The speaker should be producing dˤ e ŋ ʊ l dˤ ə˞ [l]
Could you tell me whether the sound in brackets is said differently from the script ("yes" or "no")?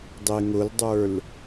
no